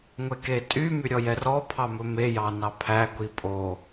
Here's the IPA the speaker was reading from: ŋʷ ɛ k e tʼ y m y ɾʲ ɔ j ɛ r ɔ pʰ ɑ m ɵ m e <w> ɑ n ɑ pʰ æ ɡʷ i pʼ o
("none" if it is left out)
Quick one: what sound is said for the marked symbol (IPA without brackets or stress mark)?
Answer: j